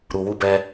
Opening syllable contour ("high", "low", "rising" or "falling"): low